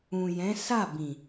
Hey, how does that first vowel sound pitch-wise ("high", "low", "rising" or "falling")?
low